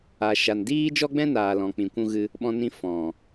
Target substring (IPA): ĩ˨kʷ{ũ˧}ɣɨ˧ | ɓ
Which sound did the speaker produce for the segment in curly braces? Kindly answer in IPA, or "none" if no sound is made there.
ũ˧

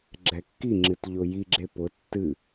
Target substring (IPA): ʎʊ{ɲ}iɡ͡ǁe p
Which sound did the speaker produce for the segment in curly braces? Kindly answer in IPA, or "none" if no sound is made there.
j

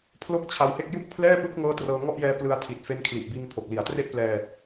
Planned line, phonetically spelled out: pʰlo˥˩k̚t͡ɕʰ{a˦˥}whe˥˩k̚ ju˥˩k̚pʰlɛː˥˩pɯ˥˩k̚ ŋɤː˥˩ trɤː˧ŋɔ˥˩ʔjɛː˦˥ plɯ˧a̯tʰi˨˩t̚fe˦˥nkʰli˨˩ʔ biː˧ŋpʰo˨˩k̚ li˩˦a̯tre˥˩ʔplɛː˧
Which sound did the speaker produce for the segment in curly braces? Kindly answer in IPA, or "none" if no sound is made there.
a˧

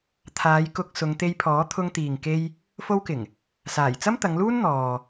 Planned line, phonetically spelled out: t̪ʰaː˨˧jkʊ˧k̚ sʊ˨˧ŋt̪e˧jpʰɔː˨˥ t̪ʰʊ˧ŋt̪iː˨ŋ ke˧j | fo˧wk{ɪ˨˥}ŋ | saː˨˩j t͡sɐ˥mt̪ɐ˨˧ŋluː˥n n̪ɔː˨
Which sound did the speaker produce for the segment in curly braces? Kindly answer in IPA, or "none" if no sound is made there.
ɪ˨˩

